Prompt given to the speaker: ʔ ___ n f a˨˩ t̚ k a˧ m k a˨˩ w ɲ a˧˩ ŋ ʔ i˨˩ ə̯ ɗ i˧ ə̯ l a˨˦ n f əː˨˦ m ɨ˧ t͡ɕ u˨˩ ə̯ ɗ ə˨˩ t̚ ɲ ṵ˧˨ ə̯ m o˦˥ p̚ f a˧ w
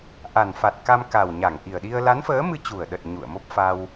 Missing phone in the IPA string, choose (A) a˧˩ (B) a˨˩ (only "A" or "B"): B